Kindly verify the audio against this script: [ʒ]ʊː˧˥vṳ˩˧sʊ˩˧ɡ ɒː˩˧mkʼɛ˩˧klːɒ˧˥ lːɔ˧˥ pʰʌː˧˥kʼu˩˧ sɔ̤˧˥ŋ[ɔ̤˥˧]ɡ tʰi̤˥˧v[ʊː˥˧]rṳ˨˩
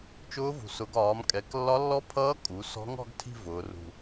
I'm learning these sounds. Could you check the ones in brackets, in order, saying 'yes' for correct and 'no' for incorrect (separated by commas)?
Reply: no, yes, no